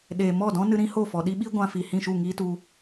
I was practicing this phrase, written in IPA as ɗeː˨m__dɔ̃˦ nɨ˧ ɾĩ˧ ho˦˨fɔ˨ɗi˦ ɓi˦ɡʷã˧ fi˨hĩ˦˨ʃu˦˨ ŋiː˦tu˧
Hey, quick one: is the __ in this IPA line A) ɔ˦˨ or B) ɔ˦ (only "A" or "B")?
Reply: A